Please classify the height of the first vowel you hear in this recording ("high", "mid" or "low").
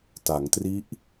low